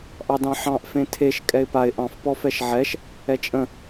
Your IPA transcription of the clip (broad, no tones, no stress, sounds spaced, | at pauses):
ʔ ɑ d ɑ̃ ħ ɑ̃ ʔ f ẽ tʰ e ʃ kʼ ɛ ɪ̯ p a ɪ̯ ʔ ɑ̃ f p ɔ f ɛ ʃ ʕ ɛ ʃ | ɛ t͡ʃʼ ə̃